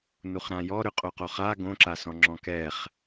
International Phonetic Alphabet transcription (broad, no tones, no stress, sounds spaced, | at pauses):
n u χ ɾ ã j ɔ ɾ ʏ qʼ o q o χ a ɡ õ ǁ a s ɔ̃ ŋ͡ǁ ɔ̃ k ɛ χ